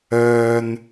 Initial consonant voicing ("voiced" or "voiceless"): voiced